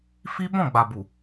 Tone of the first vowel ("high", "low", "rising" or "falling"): high